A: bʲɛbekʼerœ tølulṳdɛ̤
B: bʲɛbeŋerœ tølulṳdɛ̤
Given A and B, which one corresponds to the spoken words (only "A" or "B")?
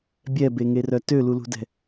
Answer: B